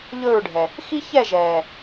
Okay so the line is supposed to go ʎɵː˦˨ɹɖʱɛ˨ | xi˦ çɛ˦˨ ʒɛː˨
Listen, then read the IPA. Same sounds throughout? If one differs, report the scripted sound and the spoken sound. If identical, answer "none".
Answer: none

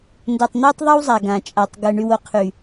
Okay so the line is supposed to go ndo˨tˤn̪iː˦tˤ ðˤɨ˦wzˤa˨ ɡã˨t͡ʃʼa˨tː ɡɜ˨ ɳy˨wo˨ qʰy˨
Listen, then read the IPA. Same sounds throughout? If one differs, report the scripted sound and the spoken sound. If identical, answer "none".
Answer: tː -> tˤ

